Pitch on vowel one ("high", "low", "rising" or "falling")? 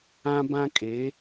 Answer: high